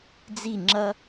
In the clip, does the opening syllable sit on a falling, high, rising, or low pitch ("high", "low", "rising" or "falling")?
falling